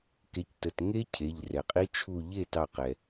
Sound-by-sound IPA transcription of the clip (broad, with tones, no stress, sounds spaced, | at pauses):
k e˩˥ c t ə˩˧˩ t ŋ e˦˥ cʰ e˩˧˩ ʎ r ɛ˩ qʼ i˦˥ t͡ʃʰ u˧˩ ʎ e˥˩ t ɑ˧˩ q ɛ˩